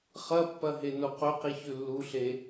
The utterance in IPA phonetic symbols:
χɐpːɐ ɦenoqɵqi çʉlːuɬe

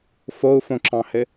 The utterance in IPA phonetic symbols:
fou̯fõǁɑ̃hɘ

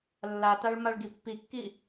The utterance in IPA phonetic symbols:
lːataɭ maɭɡipːikːi

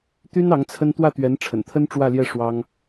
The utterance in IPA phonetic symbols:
t̪y˥n ɑ˧˥ŋt͡sʰə˥n t̪wä˥˩t̪ɥɛ˧˥nʈ͡ʂʰə̰˨˩nt̪ʰə˥n ʈ͡ʂwä˥˧ljɛ˥˩ ʂwɑ˥ŋ

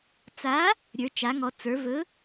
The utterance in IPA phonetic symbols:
t͡sa˨˥ | ɾʲə˞˩˧t͡ʃa˩˧ŋɔ˩˧ t͡sə˞˩˧vɵ˨˥

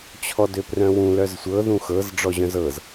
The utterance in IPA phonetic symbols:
t͡ɕʰɔdøprœ̃wũ lœzsʷɤ ðũxɤz ɖ͡ʐɔʑœ̃zɤz

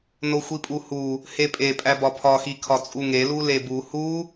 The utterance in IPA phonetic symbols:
noxʷipʼuhu | hepʼepʼæ bɒpʰɒxi kʰɒt͡sʼuŋelu lebu hu

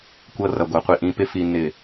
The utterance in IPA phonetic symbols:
kʷɤ˦rʌ˨ɡʷʌ˨ qʷi˨ʔĩ˨˦pɪ˦ fi˦nːɪ˦˨

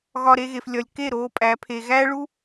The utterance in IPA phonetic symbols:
ɣɒ˧ ɾe˧ɣe˨flʲɒ˨lʲ ke˦˨ ɾoː˧ pʼæ˨˦ pʰe˨ɣæː˦ɭu˦

